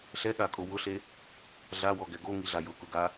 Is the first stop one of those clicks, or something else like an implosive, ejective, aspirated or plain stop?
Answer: implosive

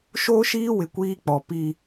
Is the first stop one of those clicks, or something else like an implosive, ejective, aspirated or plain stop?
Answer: plain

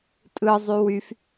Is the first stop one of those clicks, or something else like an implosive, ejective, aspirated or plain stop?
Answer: ejective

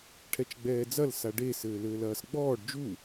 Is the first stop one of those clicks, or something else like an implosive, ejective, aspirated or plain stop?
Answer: aspirated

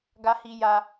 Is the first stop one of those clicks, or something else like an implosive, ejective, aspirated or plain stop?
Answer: plain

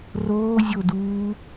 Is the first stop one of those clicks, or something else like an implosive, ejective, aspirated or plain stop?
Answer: plain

